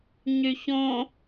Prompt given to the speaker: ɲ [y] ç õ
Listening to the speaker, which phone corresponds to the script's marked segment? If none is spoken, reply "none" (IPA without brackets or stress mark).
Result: y